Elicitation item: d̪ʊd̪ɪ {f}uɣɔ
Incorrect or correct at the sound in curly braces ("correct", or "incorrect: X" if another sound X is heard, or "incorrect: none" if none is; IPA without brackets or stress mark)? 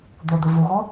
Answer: incorrect: v